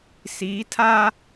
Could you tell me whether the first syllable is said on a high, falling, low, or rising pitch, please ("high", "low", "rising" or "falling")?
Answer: rising